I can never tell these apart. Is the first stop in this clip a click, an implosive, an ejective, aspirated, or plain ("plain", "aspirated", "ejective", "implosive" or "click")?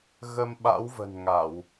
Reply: implosive